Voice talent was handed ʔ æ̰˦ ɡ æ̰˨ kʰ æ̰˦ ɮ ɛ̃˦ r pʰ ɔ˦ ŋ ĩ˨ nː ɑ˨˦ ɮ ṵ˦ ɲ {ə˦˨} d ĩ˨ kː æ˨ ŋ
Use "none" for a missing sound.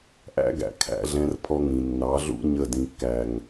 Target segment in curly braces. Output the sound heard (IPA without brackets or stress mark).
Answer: ə˦˨